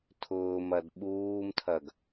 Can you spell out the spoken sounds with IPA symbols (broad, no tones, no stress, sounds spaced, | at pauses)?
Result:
tʰ ʊː m ɐ d ɓ uː m tʰ ɐ ɡ